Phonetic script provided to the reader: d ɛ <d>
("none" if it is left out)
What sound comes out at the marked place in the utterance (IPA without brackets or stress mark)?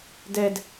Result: d